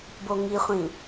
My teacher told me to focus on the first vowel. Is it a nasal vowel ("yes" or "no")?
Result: no